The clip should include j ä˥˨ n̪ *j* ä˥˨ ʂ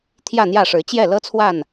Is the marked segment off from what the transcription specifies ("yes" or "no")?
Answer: no